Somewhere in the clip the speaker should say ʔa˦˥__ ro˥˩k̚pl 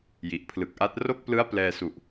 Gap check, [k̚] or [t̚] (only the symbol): t̚